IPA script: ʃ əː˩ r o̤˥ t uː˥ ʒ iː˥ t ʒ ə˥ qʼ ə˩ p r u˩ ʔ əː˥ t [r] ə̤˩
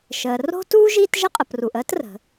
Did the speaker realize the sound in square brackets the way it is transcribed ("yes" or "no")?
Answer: yes